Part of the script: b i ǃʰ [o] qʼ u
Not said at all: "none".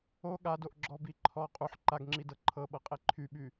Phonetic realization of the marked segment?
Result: ɔ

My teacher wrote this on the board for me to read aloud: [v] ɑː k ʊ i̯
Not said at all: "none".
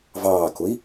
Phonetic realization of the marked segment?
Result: v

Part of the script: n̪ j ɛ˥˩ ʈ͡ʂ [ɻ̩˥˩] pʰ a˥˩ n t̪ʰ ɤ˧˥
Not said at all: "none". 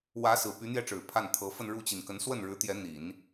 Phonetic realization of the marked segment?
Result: ɻ̩˨˩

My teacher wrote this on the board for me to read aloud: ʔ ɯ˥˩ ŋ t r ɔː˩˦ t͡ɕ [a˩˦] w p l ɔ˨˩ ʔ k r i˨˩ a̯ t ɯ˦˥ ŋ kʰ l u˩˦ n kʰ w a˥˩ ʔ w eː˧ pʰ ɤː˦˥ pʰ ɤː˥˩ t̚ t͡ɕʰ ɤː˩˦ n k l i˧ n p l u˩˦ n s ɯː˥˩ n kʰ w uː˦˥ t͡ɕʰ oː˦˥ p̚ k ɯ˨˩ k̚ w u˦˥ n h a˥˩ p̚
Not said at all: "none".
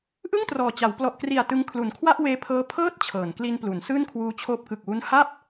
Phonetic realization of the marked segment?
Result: a˩˦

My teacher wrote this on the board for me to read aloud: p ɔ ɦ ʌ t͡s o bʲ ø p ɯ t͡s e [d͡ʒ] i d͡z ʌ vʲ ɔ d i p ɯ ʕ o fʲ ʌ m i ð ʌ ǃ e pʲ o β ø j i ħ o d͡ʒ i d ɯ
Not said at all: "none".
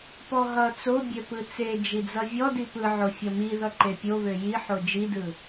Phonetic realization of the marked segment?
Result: d͡ʒ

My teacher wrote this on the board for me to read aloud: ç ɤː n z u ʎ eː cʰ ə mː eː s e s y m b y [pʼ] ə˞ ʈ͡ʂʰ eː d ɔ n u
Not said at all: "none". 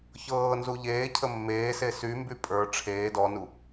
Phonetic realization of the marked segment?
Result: pʼ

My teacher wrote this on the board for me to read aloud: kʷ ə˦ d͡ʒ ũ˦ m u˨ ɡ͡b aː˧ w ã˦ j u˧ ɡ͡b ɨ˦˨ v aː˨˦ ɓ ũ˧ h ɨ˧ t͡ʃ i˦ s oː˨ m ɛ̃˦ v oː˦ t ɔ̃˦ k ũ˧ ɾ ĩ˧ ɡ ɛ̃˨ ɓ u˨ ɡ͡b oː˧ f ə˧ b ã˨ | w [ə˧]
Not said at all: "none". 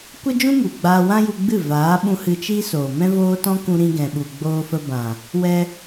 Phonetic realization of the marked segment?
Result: ɛ˧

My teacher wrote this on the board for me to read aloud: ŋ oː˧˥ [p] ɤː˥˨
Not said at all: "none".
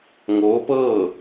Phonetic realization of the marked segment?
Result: p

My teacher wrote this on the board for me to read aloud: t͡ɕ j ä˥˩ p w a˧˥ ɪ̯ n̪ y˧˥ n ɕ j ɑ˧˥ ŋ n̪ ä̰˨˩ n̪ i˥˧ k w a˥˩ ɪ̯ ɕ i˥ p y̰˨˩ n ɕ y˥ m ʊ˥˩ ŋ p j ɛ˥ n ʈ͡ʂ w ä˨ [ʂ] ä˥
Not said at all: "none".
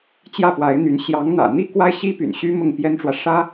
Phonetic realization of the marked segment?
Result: ʂ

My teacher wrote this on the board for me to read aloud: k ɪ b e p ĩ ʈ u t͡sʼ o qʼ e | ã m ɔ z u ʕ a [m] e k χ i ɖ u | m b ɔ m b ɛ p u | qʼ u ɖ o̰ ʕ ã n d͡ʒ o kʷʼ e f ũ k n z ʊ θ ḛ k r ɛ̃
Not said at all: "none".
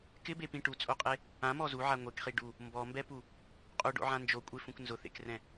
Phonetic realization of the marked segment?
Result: ŋʷ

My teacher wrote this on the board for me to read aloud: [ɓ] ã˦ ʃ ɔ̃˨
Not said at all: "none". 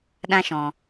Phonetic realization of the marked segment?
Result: ɗ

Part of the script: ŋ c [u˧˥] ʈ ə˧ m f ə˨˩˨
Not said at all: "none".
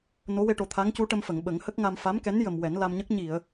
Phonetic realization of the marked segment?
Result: u˧˥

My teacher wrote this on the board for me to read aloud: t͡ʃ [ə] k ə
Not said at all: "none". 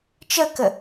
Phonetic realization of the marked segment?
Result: ə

